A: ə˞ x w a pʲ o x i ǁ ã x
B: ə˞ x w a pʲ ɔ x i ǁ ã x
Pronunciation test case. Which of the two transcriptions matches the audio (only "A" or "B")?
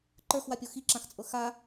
A